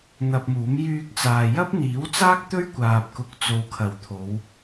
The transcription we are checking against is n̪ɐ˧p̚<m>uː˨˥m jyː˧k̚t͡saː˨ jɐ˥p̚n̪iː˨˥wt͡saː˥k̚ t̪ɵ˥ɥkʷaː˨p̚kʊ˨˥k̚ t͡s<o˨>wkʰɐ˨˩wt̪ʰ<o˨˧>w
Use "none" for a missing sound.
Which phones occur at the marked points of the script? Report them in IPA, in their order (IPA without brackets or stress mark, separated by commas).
m, o˨, o˨˧